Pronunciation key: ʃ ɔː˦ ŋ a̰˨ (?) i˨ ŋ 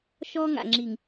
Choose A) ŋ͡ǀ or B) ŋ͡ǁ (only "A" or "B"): B